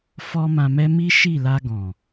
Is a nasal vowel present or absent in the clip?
present